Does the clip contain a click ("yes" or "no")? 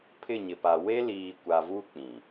no